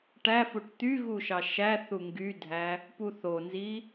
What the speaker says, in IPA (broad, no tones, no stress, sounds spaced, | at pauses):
ʈ æ f u ʈ t̪ y ɣ u ʃ ɑ ʃ æ θ u ŋ ɡ y dʱ æ | p u θ o n z i